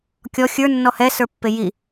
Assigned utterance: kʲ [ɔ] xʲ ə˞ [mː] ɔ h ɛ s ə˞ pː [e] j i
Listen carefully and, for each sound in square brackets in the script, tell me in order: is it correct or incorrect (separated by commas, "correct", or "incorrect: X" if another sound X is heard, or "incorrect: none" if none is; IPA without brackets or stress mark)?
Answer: correct, incorrect: nː, correct